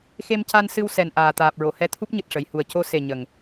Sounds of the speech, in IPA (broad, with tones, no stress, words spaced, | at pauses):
xe˧mca˧nsɨ˧w sɛ˨˩nʔaː˨˩ t̪aː˨˩p̚ɹo˨˩˨hɛ˧˥ t̪ʰu˦˥p̚ɲɨ˨˩t̚ʂə˨˩˨jhu˨˩ə̯ co˧ se˨˩ ɲə˨˩ŋ